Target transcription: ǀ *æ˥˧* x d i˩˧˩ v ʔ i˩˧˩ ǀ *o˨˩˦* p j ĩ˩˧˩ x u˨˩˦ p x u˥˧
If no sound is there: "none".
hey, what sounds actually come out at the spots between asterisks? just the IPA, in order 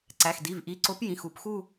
æ˩˧˩, o˨˩˦

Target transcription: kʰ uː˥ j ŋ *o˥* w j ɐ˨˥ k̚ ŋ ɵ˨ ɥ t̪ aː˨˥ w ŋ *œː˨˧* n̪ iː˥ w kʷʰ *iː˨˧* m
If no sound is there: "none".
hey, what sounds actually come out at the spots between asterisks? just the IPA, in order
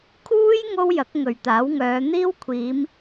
o˥, œː˨˧, iː˨˧

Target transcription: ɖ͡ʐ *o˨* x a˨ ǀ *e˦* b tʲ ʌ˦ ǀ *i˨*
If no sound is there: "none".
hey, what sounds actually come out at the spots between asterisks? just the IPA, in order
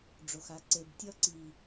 o˨, e˨, i˨

